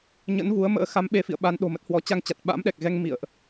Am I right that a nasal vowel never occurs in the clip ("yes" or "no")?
yes